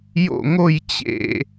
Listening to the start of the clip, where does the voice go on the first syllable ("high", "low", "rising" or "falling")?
falling